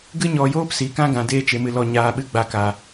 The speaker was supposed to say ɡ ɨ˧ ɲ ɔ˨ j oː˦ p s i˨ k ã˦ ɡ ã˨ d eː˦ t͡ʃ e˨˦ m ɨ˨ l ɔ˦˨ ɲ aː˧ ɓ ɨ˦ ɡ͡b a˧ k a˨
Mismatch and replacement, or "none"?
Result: none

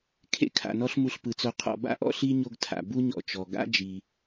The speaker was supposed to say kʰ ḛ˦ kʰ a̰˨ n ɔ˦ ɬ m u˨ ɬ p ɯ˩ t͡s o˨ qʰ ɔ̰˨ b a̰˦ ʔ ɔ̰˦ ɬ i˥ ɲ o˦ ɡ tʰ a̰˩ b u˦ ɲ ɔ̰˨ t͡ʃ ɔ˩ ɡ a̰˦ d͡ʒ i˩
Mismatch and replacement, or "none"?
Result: none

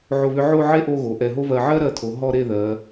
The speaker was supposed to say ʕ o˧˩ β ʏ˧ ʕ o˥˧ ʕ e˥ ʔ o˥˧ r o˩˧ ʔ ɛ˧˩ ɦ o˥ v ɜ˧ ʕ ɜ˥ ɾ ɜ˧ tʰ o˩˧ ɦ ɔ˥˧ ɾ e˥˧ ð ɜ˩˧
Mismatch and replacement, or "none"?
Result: r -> ɣ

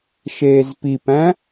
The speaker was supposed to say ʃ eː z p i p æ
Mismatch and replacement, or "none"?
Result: æ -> æ̃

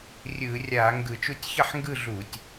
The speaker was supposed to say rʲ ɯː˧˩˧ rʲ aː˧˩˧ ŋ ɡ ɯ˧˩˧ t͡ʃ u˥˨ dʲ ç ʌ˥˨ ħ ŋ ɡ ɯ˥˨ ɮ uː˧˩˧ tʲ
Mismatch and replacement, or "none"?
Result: dʲ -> tʲ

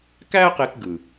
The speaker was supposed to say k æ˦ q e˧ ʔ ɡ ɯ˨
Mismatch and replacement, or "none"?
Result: ʔ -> k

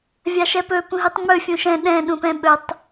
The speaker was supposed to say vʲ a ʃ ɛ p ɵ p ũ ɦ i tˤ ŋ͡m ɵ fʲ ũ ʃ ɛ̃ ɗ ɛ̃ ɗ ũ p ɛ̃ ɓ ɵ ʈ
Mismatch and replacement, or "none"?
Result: ʈ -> tˤ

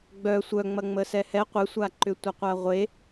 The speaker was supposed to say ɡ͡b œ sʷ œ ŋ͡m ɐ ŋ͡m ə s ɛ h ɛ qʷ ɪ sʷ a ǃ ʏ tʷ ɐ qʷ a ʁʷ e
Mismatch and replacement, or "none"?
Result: none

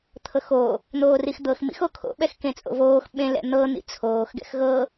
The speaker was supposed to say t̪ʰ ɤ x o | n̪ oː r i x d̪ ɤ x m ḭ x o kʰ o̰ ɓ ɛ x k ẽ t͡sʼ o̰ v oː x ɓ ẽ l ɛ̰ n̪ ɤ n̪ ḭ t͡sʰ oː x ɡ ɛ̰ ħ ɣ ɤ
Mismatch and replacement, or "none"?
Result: ħ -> x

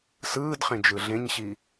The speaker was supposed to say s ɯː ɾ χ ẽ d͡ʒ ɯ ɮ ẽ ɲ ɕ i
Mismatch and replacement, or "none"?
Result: ɾ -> d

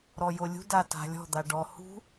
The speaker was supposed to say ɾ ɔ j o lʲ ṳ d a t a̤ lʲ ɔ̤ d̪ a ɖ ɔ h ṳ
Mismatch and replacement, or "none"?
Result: none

